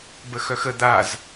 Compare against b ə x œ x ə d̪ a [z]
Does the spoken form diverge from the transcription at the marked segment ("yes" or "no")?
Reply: no